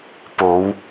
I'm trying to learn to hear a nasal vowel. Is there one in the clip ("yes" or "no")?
no